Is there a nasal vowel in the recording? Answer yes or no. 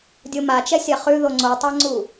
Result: no